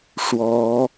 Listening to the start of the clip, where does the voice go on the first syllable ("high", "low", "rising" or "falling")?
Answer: rising